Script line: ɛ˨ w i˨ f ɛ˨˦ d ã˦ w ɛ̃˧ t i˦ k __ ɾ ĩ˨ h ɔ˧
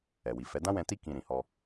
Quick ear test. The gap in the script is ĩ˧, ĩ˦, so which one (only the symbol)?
ĩ˧